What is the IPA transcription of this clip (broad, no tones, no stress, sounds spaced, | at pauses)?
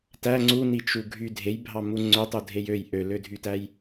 t æ ŋ͡ǀ u n i t͡ʃ u ɡʱ y dʱ e j bʱ ɑ m u ŋ͡ǀ ø tˤ u dʱ e j ø j ʔ ø l ø dʱ y t æ j